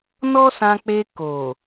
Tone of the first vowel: high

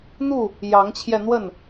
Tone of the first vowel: falling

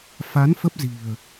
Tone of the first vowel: rising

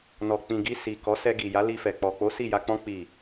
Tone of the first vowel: low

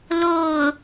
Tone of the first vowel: falling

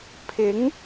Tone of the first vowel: rising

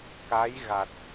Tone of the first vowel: rising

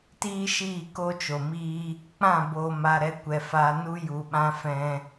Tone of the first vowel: high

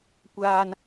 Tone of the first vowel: high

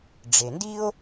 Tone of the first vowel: low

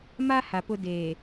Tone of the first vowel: high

